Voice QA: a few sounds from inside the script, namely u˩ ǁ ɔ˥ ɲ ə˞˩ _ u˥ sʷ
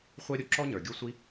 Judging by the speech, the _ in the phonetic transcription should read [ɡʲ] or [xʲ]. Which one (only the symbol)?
ɡʲ